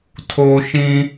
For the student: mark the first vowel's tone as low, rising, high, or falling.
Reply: low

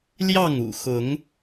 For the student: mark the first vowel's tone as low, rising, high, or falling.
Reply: falling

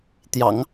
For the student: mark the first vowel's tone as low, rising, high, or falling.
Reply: low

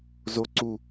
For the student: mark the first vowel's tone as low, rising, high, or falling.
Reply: rising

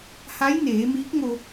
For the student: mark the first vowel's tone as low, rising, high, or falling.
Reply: rising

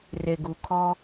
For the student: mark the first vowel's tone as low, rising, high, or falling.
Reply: low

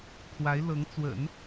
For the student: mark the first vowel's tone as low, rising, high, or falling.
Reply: rising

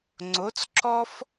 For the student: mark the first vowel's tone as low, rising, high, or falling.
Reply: rising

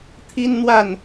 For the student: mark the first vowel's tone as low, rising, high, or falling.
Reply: high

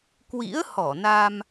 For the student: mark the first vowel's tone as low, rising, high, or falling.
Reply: rising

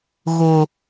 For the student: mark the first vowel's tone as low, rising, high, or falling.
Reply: low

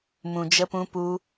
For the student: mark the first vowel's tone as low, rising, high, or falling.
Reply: low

